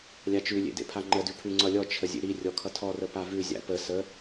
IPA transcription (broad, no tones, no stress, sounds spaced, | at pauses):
lʲ a t͡ʃ ʉ lʲ ḛ d ḛ pʰ a ŋ͡ǃ ə d ʉ pʰ ʉ ŋ͡ǀ ʌ lʲ ɔ t͡ʃʰ ə zʲ ḛ ɾ i rʲ ɔ kʰ ʌ tʰ ɔ r ə p a v ʉ zʲ a̰ p ə s ə